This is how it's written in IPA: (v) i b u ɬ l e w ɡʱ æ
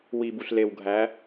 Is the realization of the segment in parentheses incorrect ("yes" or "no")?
yes